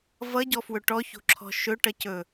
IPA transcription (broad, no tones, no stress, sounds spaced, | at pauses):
v ʌ ɟ ɔ f w ɵ ʈ ɔ ç o̤ ǁʰ ɔ̤ ʃ ɵ ʈ ʌ c ɵ